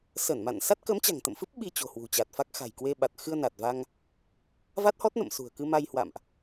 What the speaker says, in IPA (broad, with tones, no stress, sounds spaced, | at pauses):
s ə˧˩ n m a̰˧˨ n s a˦˥ t̚ k ə˨˦ m t͡ɕ a̤˨˩ ŋ t̪ ə̰˧˨ m f ɨ˦˥ p̚ ɓ i˧ t͡ɕ o̤˨˩ h w ṳ˨˩ t͡ɕ a˨˩ t̚ f a˦˥ k̚ x a̤˨˩ j k w e˧ ɓ a˨˩ t̚ x ɨ˧ ə̯ n a˨˩ t̚ v a˧ ŋ | v a˦˥ t̚ h ɔ˦˥ t̚ n ə̰˧˨ m s ṳ˨˩ ə̯ k ɨ˧ m a˧ j h w a̰˧˨ m ʔ